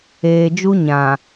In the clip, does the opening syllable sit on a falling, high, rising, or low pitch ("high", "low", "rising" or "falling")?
low